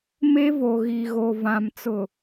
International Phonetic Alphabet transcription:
m e˦ v o˨ ɣ i˨ ɣ o˨ v ã˨ m t͡s ʊ˨

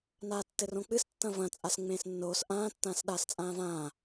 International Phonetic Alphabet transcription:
n aː tː ɘ r õ k͡p ɨ s tː ɐ̃ v ɐ̃ t͡sʼ a s ŋ͡m ẽː s nː oː s ʔ ãː tː ãː s ɗ aː s t͡sʼ ãː v ãː

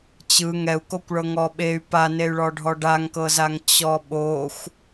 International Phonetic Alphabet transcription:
t͡ɕ ɯ ŋ ɛ u̯ k o kʷ ɭ ɤ ŋ ɔ ɓ e y̯ p a n e y̯ ɭ ɔ ɖʱ ɔ ɖ a ŋ k ɤ z a ŋ t͡ɕ ɔ ɓ o xʷ

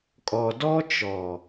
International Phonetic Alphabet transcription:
kʼ ɔ˨ d ɔ˦ t͡ʃ ɔ˨

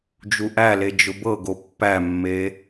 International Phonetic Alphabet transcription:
d͡ʒ u ʔ æ l e d͡ʒ ʊ b ɤ ɡ o pː æ mː e

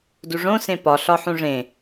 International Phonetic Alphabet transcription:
d u ʐ õ s ẽ p ɒ ɬ ɒ ħ ũ ʐ ẽ

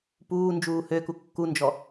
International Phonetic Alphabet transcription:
p uː n d͡ʒ uː h ø k u kː u n d͡ʒ ɔ

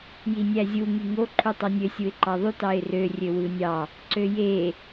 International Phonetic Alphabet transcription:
j i nʲ æ zʲ u ŋ y ŋ o ǃʰ u tˤ o nʲ ø sʲ u ɪ̯ ǃ ɑ ðˤ y t ɑ ɪ̯ r ø rʲ ø w ɯ nʲ ɑ | ǀ ø j e

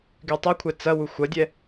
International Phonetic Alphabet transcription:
ɡ y tˤ ɛ kʷʰ ɛ t͡s ɐ w u xʷ ɐ dʲ ɛ

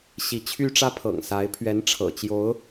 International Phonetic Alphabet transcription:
ɕ i˧˥ t͡ɕʰ y˥ ʈ͡ʂ ä˥ pʰ ɤ̰˨˩ ŋ s a˧˥ ɪ̯ pʰ ɥ ɛ˧˥ n ʈ͡ʂʰ ɤ̰˨˩ t͡ɕ j o˧˥ ʊ̯

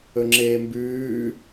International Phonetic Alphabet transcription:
ɵ ŋ͡ǁ eː m b ʉː

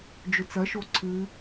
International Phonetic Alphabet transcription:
d͡ʒ ɵ t͡s ɐ ʃ o ǀʰ ɨ

